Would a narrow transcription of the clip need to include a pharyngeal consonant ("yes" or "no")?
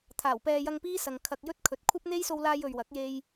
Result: no